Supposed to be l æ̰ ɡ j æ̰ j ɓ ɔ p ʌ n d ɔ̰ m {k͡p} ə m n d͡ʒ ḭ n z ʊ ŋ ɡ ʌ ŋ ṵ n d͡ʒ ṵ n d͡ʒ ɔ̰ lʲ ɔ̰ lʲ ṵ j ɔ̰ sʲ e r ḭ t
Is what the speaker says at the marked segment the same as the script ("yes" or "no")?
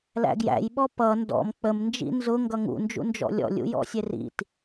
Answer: yes